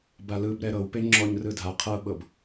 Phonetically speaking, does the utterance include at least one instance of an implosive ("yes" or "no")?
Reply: yes